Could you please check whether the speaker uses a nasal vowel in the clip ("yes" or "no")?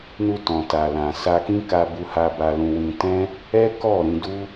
yes